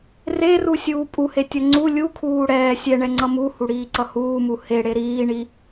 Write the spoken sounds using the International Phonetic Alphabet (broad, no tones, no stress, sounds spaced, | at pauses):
r e r u sʲ uː pʼ u h e tʲ ʌ ŋ͡ǀ u lʲ u kʰ uː ɽ ɛː sʲ ɛ ɳ ɛ ŋ͡ǀ ʌ m u h u ɽ iː ǀ ʌ h uː m u h e ɽ e ɾ iː ɳ i